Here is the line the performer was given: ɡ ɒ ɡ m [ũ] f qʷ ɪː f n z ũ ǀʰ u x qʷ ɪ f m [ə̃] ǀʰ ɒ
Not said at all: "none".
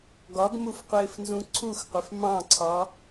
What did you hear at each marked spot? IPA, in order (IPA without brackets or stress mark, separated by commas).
u, ɑ̃